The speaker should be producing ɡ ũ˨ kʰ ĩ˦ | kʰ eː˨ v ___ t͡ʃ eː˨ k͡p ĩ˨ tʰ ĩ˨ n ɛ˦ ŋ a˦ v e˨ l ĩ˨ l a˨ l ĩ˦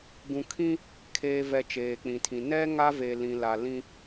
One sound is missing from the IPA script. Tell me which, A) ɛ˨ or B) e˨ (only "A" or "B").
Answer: A